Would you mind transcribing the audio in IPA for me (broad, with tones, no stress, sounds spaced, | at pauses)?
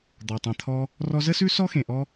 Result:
d̪ ɔ˩ tˤ ɛ̃˩ t̪ʰ ɔ˧ | r ɔ˧ z ə˥ s ʉ˥ s ɔ˥ x ẽ˩ ʔ ɔ˧